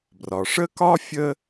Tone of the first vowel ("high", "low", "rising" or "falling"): low